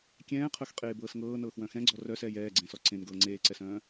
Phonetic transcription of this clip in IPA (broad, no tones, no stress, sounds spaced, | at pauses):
kʲ ɛ̃ː qʰ œ x qʼ eː b ɤː s ŋ ɤː n ɤː x w œ̃ x ɛ̃ ɡ͡ǀ ɔ r œ s ɛː j ɛː ɡ͡ǀ ẽ s ɔ ǀ ẽ n ɡ ɤː ŋ͡ǀ eː ǀ ɛ s œ̃ː